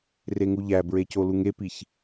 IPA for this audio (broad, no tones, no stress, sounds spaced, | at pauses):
r e ŋ u ʎ æ b ɹ e c o l u ŋ e p i ç